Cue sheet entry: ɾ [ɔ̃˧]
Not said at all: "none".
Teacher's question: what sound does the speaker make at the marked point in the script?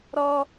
ɔ˧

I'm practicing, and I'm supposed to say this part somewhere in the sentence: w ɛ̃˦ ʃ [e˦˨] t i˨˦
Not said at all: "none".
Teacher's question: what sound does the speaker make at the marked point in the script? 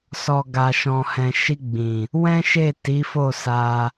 e˦˨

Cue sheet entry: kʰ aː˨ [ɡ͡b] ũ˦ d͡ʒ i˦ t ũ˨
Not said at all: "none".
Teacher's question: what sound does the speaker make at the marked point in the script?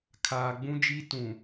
ɡ͡b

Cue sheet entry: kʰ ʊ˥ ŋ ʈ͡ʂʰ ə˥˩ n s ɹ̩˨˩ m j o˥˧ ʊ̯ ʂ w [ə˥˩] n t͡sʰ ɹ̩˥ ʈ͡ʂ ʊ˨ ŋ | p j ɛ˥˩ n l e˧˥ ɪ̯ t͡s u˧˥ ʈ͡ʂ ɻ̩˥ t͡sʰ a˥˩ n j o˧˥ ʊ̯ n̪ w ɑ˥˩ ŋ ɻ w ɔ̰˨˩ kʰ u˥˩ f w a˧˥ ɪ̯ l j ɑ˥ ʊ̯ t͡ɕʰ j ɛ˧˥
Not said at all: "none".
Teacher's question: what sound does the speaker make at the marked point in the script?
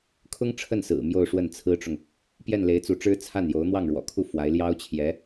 ə˥˩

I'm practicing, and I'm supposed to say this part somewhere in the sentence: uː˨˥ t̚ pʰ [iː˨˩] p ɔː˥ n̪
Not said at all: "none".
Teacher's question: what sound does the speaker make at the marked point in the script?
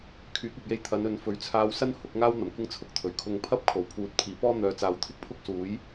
iː˨˩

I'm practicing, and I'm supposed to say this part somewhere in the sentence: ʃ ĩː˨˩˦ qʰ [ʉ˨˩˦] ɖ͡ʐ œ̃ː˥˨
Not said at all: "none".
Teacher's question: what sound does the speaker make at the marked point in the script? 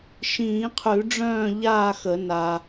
ʉ˨˩˦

